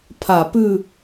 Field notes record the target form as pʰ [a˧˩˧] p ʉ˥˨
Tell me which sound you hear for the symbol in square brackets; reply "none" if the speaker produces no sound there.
a˧˩˧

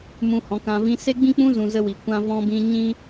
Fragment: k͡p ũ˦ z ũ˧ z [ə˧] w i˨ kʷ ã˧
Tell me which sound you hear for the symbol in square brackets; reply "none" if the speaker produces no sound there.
ə˧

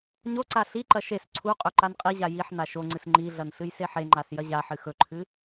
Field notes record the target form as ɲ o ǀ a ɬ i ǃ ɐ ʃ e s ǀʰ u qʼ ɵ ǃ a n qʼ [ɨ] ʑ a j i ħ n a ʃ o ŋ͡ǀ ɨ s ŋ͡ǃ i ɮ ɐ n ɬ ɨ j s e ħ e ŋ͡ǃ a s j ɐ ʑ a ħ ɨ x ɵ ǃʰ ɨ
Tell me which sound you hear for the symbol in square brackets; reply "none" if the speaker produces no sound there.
i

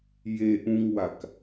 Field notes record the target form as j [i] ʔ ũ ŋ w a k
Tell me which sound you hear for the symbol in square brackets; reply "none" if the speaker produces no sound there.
e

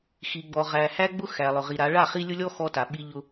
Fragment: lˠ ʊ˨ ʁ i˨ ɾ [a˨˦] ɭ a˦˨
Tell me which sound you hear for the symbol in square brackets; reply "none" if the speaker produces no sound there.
a˨˦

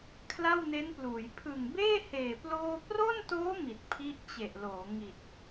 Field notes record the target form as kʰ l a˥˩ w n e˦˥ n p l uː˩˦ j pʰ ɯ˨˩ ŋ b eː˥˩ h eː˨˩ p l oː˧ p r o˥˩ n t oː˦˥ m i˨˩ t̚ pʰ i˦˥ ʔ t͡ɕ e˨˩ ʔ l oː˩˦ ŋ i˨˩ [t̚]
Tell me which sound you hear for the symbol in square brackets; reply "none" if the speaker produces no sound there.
t̚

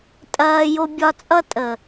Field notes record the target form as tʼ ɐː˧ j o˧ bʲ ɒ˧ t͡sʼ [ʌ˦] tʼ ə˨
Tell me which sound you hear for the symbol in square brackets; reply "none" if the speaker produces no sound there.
ʌ˦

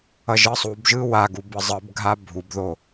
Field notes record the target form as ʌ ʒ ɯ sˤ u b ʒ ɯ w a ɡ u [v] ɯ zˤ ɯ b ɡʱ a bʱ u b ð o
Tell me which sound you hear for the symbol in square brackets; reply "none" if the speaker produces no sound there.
b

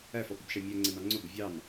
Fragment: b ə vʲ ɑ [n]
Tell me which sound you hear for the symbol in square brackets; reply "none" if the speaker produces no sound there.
n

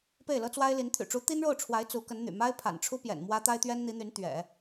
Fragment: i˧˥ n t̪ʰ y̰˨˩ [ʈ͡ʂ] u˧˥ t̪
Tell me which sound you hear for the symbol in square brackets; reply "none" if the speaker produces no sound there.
ʈ͡ʂ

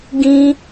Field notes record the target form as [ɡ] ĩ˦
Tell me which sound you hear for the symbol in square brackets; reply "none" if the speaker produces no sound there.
ɡ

